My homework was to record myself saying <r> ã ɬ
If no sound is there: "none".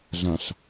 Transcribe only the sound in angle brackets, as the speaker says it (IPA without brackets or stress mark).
ɮ